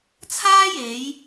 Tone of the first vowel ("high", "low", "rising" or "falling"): high